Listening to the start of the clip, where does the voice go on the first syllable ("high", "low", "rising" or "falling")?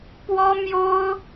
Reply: high